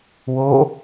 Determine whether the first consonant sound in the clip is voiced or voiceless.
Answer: voiced